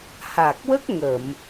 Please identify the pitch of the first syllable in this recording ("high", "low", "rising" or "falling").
low